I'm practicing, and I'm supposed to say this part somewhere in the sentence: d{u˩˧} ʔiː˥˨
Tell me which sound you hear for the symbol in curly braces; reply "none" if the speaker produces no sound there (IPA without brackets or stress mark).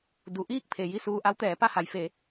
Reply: u˩˧